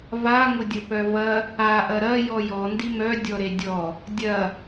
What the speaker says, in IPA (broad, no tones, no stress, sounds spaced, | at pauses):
v a ŋ ʊ dʲ ə p œ v ɐ | a ʔ ɐ ɾ ɐ j ɔ j ɔ n d i m œ dʲ ɔ ɾ e dʲ ɔ | dʲ ɐ